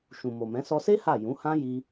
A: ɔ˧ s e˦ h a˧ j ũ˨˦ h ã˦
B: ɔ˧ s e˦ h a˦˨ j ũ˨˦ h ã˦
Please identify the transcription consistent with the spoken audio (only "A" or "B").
B